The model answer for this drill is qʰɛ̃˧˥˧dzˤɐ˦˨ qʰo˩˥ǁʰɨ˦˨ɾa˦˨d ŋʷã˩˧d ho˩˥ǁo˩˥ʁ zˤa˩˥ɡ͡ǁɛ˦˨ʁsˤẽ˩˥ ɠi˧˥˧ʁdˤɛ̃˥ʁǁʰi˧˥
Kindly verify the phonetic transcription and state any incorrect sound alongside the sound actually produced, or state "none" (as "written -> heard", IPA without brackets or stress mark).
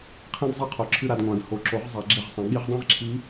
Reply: none